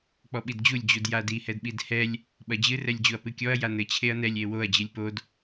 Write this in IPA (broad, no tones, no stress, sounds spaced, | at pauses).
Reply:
k͡p ɔ ɓ i d d͡ʑ u lʲ d͡ʑ u d j a d i h ɛ d ɓ i d h ɛ lʲ | ɓ ɐ d͡ʑ ɨ r ɛ lʲ d͡ʑ u ɐ̯ p ɨ kʲ ɔ ɐ̯ j a n ɘ t͡ɕʰ e ɐ̯ n ɛ lʲ e w o ɐ̯ d͡ʑ ɨ lʲ p o d